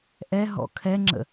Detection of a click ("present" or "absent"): present